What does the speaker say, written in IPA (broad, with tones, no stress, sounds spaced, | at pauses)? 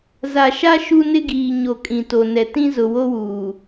z a˨ ʃ a˦ ʃ u˦ n ɪ˦ ɡ iː˨ ɲ o˨ kʼ ĩ˨ t o˨ n ɛ˨ t ĩ˦ z ʊ˨ w o˦ w uː˨